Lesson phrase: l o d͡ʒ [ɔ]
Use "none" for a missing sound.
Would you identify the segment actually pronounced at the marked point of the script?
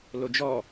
ɔ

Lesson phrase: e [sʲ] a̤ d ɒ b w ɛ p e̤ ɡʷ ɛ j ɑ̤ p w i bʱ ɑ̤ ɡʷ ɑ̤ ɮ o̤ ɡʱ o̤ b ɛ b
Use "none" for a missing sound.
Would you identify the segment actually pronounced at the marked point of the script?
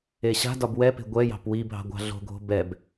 ɕ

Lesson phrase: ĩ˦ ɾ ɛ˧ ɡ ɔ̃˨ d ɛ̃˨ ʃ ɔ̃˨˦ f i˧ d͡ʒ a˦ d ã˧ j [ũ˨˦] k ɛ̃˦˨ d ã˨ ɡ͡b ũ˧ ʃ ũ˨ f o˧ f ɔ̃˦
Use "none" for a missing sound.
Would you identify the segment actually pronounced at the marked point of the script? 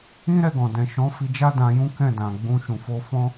ũ˦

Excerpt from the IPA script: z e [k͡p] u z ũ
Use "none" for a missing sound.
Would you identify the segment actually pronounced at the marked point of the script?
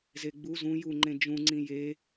ɡ͡b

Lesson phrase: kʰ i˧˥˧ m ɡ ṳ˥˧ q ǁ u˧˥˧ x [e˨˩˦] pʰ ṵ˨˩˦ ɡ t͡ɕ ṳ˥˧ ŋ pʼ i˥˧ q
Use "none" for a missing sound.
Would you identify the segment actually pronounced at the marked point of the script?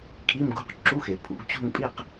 e˨˩˦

